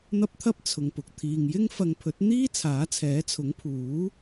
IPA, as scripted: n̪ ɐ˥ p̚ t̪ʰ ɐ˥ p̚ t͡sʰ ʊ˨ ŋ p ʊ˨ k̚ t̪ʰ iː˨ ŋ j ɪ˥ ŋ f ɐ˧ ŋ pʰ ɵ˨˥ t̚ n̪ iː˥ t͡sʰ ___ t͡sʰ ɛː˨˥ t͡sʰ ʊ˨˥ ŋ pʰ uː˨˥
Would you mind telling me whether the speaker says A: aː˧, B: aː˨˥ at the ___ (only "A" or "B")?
B